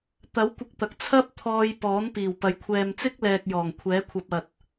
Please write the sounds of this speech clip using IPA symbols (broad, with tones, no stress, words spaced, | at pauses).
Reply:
t̪ɐ˨˥w kʷɪ˧k̚t̪ɐ˨k̚ t͡sʰɐ˥p̚ t̪ʰɔː˧j pɔː˨˥npiː˨˩w pɐ˨j kʷʰɛː˨mt͡sɪ˥k̚lɛː˨k̚ jɔː˨˩ŋ kʷʰɛː˨˥kʷʰɐ˧p̚ɐ˨t̚